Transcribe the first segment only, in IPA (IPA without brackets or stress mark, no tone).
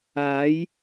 aː